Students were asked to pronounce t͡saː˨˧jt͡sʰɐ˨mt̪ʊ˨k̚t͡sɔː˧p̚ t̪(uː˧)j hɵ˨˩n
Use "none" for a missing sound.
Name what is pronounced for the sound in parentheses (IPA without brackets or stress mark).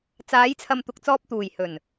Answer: uː˨˩